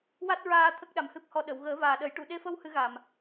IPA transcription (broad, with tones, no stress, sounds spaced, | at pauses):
w a˦˥ t̚ ɹ aː˧ t̪ʰ ə˦˥ k̚ ɗ a˨˩˦ m h ɨ˦˥ p̚ h ɔ˧ ɗ ə˨˩˨ w ɣ əː˨˩˦ v aː˨˩ ɗ ə˨˩˦ j ʈ u˨˩˨ ɗ e˧ f ə˧ w h ɨ˨˩˦ ɣ a˨˩ m